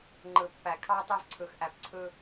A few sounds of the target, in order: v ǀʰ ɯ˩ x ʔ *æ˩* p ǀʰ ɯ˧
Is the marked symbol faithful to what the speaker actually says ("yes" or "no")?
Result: yes